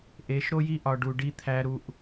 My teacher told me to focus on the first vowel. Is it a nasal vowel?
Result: no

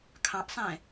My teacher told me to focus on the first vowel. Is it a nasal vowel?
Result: yes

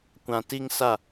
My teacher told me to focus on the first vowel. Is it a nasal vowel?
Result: yes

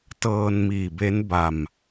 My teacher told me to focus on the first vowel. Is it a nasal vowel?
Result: no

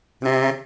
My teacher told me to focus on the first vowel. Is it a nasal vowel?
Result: yes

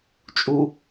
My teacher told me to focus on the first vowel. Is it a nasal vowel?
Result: no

